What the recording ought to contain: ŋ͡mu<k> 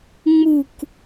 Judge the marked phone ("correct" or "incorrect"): correct